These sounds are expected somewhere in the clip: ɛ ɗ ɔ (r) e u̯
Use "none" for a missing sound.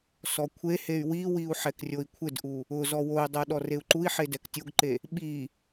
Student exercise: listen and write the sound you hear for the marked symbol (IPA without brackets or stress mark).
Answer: r